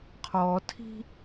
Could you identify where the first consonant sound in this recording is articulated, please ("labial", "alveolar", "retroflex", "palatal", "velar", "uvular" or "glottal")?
uvular